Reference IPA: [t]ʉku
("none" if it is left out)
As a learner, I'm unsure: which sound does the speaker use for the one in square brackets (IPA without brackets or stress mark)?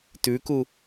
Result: t